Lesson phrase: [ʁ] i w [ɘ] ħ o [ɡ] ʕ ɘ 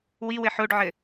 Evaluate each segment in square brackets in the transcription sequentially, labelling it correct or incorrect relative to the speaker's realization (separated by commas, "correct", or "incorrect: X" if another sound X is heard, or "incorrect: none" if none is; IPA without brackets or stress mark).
incorrect: w, correct, incorrect: ɖ